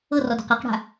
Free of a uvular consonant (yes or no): no